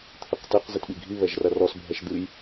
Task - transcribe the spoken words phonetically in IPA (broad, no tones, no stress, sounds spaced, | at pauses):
t̪ʰ ɨ q t ɛ q z ɨ t ɓ i ɡʱ i β ɛ ʒ r ɐ r ɔ s bʱ ɛ ʃ d̪ ɨ j